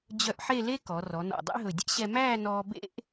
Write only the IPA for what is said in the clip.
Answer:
d͡ʑœ˧ʔħe˥˧le˥ kɔ˩˧ rɔ˩˧nɔ̰˧˩dˤḛ˥ɦɵ˧˩ dʲɛ̰˥ɕɛ˧ mæː˥˧nɔː˧ bḛ˥ʔ

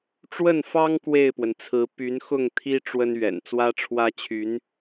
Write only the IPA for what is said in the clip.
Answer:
ʈ͡ʂwə˥˩nfɑ˥ŋ kwe˥˩ɪ̯pwə˩nt͡sʰɹ̩˧˥ py˧˥nxʊ˥˩ŋt̪ʰi˥ ʈ͡ʂwə˥nɥɛ̰˨˩n t͡swä˥ʈ͡ʂʰwä˥t͡ɕʰy˧˥n

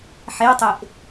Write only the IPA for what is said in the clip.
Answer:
ħetˤeʔ

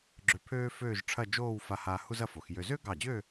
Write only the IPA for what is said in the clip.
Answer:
ɡ͡ǁø˧pʰøː˥føː˥˧ʒ ʈ͡ʂʰɐ˥˧d͡ʒoː˥˧wfa˧ha˧ hu˥zɐ˥˧fo˩˧xjø˧ zø˥ɡɑ˧˩d͡ʑø˥˧

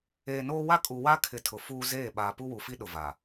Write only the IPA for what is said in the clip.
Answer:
eː˨noː˦ wa˦kʼu˨wa˦ kʰɪ˨ tʰʊ˨ fuː˦zeː˦˨ ɓaː˨pu˦wu˨fi˦ ɗʊ˨va˨

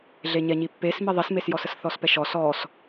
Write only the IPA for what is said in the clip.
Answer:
ɮeɲɛɲipːes miðˤismesjɔs əsθɔspɛʃɔs ɔs

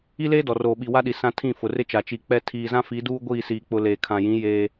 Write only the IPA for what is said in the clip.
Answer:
i˦leː˦ dɔ˨roː˨ɓi˨ wa˦ɗi˨ sã˦tʰĩ˦˨ fʊ˨rɪ˦t͡ʃa˨ t͡ʃi˨k͡pɛ˦ tʰiː˨zã˦ fi˨˦duː˦ ɡʷiː˦˨siː˨k͡pʊ˨ leː˨kʰã˨jĩ˨˦ jeː˦

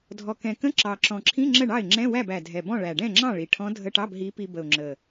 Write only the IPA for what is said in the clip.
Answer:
dʱɔ˨˩kɛ̃˨˩kə̃˧˥˧ ǁɑ˨˩ǁɔ̃˨˩ǁʰĩ˧˥˧ ŋ͡ǁə˥˩ɳɑ˥˩ɪ̯ ŋ͡ǁɛ̃˧˥˧wæ˥˩b æ˨˩dʱɛ˨˩bɔ̃˥˩ ɭæ˨˩ɖɛ̃˥˩ŋ͡ǁɑ̃˥˩ ɭi˨˩ʈʰɔ̃˧˥dʱə˧˥˧ʈɑ˧˥˧b ɦi˧˥pi˧bə˨˩ʊ̯ ŋ͡ǁə˨˩

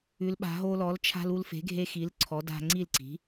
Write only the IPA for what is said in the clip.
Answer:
ʉ˩˧lɓa̤˩˧ɦo˧lɔ˩˥l t͡ʃʰa̤˧l u˧lfe̤˩˥ɡʱe˧xi˩˥l ǀʰɔ˩˥ da̤˧ŋ͡ǀi˥˩lǀi̤˩˥

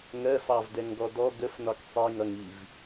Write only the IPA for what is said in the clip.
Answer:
ŋɜfɑvdɛŋɡɔ dɔ ɡəfnɒk sˤiŋʌŋiv

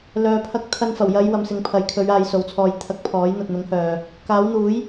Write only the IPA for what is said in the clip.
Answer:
lœː˨pʰɐ˧k̚ t̪ʰɐ˧nfɐ˨˩wjɐ˨˧j wɐ˨msɪ˨ŋpʰɐ˨jkʰɵ˨˧ɥ aː˧jso˨˥wt͡sʰɔː˧j t̪ʰɐ˧k̚pʰɔː˨˥j n̪ɐ˨t̚n̪ʊ˨˥ŋhœː˨ | kaː˨˥wn̪uː˨˥j

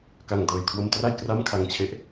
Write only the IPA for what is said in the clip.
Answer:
ka˨˩ŋ dɤː˨˩jkʰwo˧mtra˥˩j kra˥˩mkʰa˧ŋt͡ɕʰe˦˥ʔ

